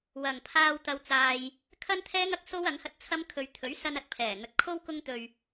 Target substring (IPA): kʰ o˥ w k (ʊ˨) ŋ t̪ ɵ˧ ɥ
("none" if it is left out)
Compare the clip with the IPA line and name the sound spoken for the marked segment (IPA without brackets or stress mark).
ʊ˥